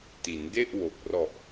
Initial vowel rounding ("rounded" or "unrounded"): unrounded